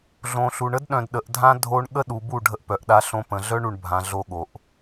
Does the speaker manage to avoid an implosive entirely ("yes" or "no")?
no